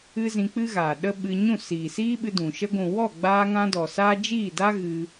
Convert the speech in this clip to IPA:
ɨ˦ z ĩ˧ k͡p ɨ˦ ɣ aː˨ ɗ ə˦ ɓ ɨ˧ ɲ ũ˦˨ s iː˨ s iː˦ ɓ ɨ˧ d ũ˨ ʃ ə˧ ɡʷ ũ˨ w ɔ˦˨ ɡ͡b aː˧ ŋ ã˧ d ɔ˨ s aː˦ d͡ʒ iː˦˨ d a˦ ɣ ɨ˧

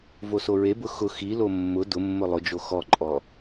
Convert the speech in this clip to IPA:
v o s o ɹ e b ʊ x ʊ x i l o mː ʊ d ʊ mː ʊ lˠ ʊ d͡ʒ o x ɔ ǃʼ ɔ

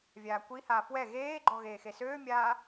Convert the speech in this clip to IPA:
vʲ aː kʷ i h aː f w ɛ ɣ eː ɡ͡ǃ ɔ ɣ eː x e s øː mʲ aː

